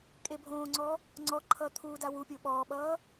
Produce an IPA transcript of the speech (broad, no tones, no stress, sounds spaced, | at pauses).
kʼ e bʱ õː ŋ͡ǀ ɔ | ŋ͡ǀ ɔ ǃʰ ʌ t̪ʰ uː d a w u pʲ o ɓ ɔː ɓ ʌː